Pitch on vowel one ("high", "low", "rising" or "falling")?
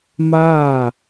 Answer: falling